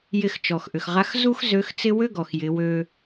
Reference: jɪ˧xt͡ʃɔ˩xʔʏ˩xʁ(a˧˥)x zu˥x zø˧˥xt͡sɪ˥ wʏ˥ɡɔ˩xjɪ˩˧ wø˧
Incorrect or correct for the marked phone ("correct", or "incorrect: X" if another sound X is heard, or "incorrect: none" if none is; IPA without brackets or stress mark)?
correct